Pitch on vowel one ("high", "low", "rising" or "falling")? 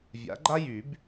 rising